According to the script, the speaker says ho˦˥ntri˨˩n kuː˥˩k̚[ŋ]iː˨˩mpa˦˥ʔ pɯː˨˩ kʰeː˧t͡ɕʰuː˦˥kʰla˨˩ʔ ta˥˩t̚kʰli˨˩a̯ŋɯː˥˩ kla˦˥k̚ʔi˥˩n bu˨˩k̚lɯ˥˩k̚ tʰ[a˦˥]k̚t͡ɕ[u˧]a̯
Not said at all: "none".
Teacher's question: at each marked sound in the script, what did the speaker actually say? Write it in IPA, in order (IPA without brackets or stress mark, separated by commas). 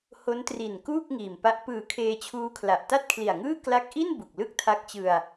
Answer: ŋ, a˦˥, ɯ˧